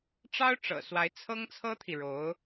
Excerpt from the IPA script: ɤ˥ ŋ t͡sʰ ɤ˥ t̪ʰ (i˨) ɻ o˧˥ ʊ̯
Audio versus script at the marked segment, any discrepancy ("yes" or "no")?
no